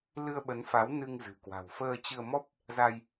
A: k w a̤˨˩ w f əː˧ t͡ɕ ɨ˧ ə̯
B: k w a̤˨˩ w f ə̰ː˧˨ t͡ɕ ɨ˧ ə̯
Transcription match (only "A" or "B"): A